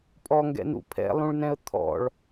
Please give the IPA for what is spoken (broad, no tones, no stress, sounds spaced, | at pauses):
pʼ ɔ ŋ ɡ ɛ̰ n ṵ pʰ ɛ̰ lˠ ũ ɭ n ɛ̃ ə̯ t̪ʰ ɔ̰ ɭ